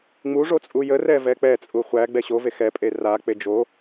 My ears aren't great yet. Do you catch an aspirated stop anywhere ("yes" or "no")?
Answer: no